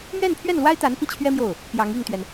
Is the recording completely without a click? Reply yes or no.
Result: yes